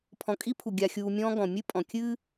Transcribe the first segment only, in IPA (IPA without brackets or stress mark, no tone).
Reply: pʰ